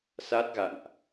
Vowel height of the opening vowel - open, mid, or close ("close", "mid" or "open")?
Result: open